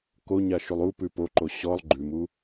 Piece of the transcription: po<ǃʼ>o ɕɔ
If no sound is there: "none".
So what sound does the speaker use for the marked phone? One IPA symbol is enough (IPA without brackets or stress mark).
ǃ